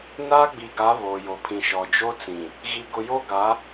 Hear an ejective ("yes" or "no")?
no